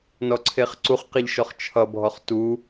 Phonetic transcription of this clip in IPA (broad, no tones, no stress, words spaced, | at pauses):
nɔǀʰeχǀuχqeʎ ʃɔχt͡ʃʰʌbʱɔχ tu